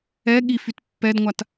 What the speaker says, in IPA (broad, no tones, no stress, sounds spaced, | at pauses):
ɛ ɠ i f y t pː ɛ d ŋʷ a t